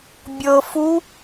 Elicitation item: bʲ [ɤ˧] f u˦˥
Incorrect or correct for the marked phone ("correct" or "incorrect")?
correct